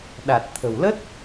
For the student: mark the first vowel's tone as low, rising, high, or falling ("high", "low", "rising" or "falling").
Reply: low